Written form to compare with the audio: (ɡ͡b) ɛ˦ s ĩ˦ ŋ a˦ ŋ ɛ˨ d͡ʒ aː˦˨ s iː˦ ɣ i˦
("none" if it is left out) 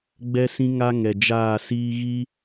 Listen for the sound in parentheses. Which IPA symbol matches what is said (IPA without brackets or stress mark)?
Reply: ɡ͡b